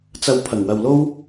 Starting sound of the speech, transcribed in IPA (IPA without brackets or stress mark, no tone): t͡s